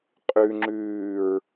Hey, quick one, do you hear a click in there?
yes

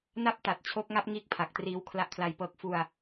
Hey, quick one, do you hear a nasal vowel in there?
no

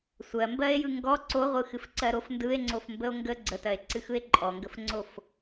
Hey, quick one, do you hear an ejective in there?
yes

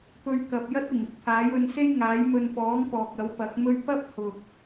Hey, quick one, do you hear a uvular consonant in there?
no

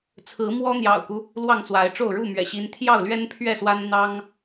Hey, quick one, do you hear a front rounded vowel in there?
no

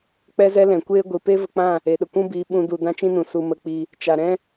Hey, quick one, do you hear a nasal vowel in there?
yes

